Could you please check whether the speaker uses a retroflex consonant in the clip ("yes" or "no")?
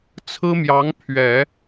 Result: no